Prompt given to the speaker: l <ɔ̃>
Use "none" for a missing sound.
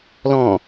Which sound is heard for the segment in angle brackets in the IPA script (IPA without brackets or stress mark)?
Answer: ɔ̃